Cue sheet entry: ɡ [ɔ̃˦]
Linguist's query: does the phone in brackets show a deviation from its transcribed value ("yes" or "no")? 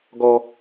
yes